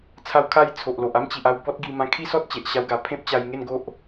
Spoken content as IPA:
t͡sʰa˧wkʰa˧j t͡sʰo˨ʔlo˨ʔa˦m t͡ɕi˨ʔa˧w bɔ˦t̚ɡi˧ mã˧kʰi˦ sɔ˦t̚t͡ɕe˨ʔɕa˧wɡa˨˩ pʰẽ˦p̚t͡ɕa˧jŋe˥˧nɡo˦ʔ

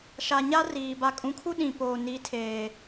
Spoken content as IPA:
ʃa˨ɲa˦ riː˨ ba˨kʼũ˨kʰu˦ ɗĩ˨poː˨ ni˨˦tʰeː˨

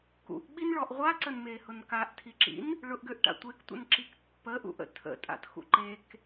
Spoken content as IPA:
kṵʔɓinɭɔʔ ʁʷaǀənmehʊn kaʔtʰiǁḭn | ɭʊʔɡøʔʈa̰ tʷektʷə̰nǁik pːəʔṵʔə̰ tʰə̰tʼa̰txṵ ǃek

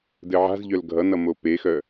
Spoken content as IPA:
dɘʕa̤zʎœl ɡʱʌnʌ mopexœ

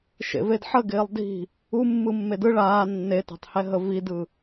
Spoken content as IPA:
ʃḛvedħəɡɪːlˠ di̤ | umːɯ mːedɯ ɭaː nːetɛ̤tˤhɛ ɦəvidɯ

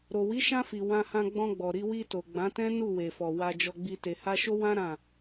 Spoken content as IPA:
ɾo˨wi˨˦ʃã˧fi˨ wã˧hã˧ ɡ͡bɔ̃˧ɡ͡bɔ˨ɾi˧ wi˧to˨ ɡ͡bã˨˦tɛ̃˦ nu˦˨we˨fɔ˨ wa˧d͡ʒɔ˧ɡ͡bi˧ te˨ha˧ʃo˦ wã˦ ɾã˦˨

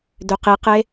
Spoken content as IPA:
døqiqe

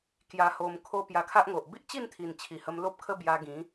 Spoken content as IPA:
kja˨˩ho˨˩m kʰo˧ pja˧kʰa˦ʔŋo˨ʔ bi˦ʔt͡ɕi˥˧nt̪ʰi˨˩n t͡ɕʰi˨˩hə˧m lo˦p̚kʰə˦ bja˧ɡĩ˨˦

